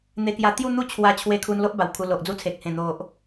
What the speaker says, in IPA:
n̪ e˧ k j a˧ t̪ j u˥˧ n̪ u˥˧ t͡ɕʰ w a˧ t͡ɕʰ w e˧ kʰ u˧ n l o˦ ʔ b a˨˩ w kʰ u˧ l o˨ ʔ d͡z u˦ t͡sʰ e˨ k̚ h ẽ˨˩ n̪ o˨ ʔ

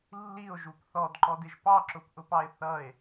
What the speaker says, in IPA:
lː i o̯ ʒ u p θ ɔ d ǃ ɔ d ɪ ʒ p ɑ ǁ ʊ p ʔ ʊ p ɑ e̯ θ ʌ e̯

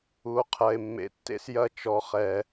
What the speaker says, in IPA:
u˨ o̯ qʰ ɐ˨ e̯ mː ḛ˨ tː ḛ˦ s j ɐ˦ t͡ʃ ɔ˨ χ ɛ˨

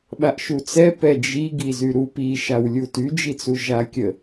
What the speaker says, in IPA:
ɓ a ʔ ʃ u t͡s ɛ p ɛ d͡ʒ i ɡ i z y ɾ u p i ʃ a w lʲ u t y d͡ʒ i t͡s u ʒ a kʲ ə

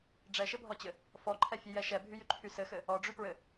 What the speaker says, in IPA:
ɖ͡ʐ ɛ ʃ ɘ bʱ ɔ t͡ɕ ɘ | f ɔ ǃʰ ɛ fʲ ɛ j ɛ ʃ ɛ bʱ y j y ǃʰ y s ɘ x ɘ | ɔ ɖ͡ʐ y p ɹ ɘ

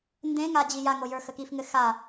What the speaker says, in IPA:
n d ẽ ŋ a d͡ʑ i j a ŋ o j ə˞ x ə k i f ŋ ɘ x a

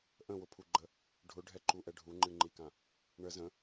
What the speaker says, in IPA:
ʔ ə̃ w ʊ pʰ u ɡ͡ǃ ə | ɖʱ ʊ ɖʱ ɛ ǃ u ʔ ɛ ɖʱ u ŋ͡ǃ ɨ ŋ͡ǃ i k ã | ɳ ə z ə̃

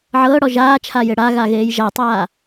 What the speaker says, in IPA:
ʕ ɤː ɽ ɔ ʒ aː t͡ʃʰ a j e ɽ a ɣ a ɣ eː j ʒ a tˤ aː

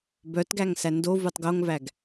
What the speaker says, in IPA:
b œ t ɡ æ ŋ s æ n d o v u tˤ ɡ o ŋ v æ ɡ

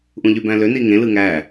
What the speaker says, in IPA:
ʔ ũ ʎ y b æ̃ l ø n i ŋ ẽ l ɯ ŋ æ

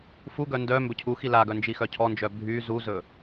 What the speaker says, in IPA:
f u ɡ œ n d œ m b ɵ cʰ u x i l a ɡ œ n d͡ʒ i x œ cʰ ɔ n d͡ʒ œ bʱ y z u z ɵ

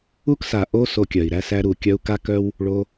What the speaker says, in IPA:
u˦ k s a˨ ʔ o˦ s o˧ kʲ œ˨ i̯ ɾ æ˧ s æ˧ ɾ u˨ kʲ œ˧ u̯ k a˦ k œ˦ w | ɭ o˧

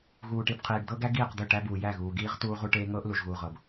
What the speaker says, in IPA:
ɣ uː˨ ʈ i˨ b qʰ iː˨ ɖ d̪ ɤ˦ ɡ æ˦ ɡ iː˦˨ q d̪ ɵ˦˨ ʈ æ˦ b uː˨ j æ˦˨ ɣ uː˨ ɡ iː˦ ʁ t uː˦ ʁ u˦ ʈ eː˦ ŋ ɤː˦ ʔ l u˨ ʒ ɣ uː˨ ʁ ɤ˨ b

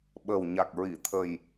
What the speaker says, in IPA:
ɓ əː˨˩ w ɲ a˨˩ k̚ ɹ i˨˩˨ t̪ʰ ə˨˩ j

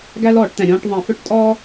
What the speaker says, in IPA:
ɡ æ˥ l ɔː˧˩˧ ʈ t̪ ɛ̃˩ ɾʲ ɔ̃ː˧˥˧ ʈ ðˤ ɛ̃˧˩˧ f ɵ˥ ʈ tʼ ɔː˥

